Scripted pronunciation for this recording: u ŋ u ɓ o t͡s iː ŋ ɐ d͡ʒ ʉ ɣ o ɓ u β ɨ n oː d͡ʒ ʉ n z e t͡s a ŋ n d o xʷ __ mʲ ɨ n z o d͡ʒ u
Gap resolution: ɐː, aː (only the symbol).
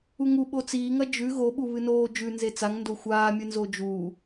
aː